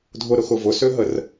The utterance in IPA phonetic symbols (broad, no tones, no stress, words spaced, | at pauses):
dʱʊɾʊxʊ vʊsøɦər